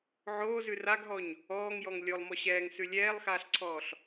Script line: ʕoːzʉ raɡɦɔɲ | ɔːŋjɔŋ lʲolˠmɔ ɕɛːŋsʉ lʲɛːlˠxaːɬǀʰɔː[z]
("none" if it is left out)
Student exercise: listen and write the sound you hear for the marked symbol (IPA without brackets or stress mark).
ɬ